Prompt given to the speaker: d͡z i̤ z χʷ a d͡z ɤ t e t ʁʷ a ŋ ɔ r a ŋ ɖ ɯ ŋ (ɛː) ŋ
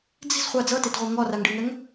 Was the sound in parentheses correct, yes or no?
no